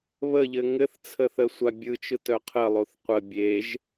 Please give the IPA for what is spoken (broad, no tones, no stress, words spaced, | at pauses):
βəʎɘ ŋɘθt͡sʰə θəsʷabʲɯt͡ʃɯt œqʰəlˠoθ qʷə bʲeʒ